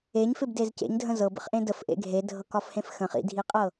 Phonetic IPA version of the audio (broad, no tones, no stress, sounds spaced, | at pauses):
e ɲ f ɪ b d e z c ḛ ɲ dʱ ə̃ z ɤ b ə̰ χ ʔ ẽ d ə f ʔ ḛ ɡʱ e dʱ ɤ k ɒ f h ẽ f x ə̃ χ ḭ dʱ i qʼ ɤ